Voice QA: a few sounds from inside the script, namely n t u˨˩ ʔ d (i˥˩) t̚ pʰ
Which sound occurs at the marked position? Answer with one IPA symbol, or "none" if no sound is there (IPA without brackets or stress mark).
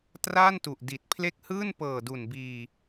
i˨˩